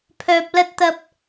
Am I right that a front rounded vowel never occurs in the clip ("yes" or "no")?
no